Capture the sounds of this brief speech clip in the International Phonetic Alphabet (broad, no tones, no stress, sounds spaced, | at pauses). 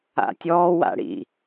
a̰ tʲ ɔː w a̰ ɽ ḭ